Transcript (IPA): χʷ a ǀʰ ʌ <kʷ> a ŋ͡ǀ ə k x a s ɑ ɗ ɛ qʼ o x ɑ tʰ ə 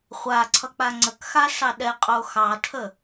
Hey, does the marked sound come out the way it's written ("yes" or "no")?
no